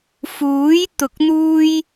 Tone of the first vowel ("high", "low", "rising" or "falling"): rising